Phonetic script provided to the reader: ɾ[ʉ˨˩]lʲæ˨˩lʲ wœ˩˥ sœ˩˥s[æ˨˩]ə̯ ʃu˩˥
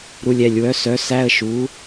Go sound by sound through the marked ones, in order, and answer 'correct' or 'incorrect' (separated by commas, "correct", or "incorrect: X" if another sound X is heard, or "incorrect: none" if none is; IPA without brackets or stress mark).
incorrect: u˨˩, incorrect: æ˧˥˧